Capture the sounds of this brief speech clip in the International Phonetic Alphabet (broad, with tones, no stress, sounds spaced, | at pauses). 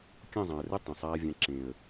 kʲ ɐ̃˦˨ zˤ ã˨ ə̯ r ɘ˦ tˤ ẽ˨ sˤ aː˧ vʲ ã˧ ǁ ẽ˨ ə̯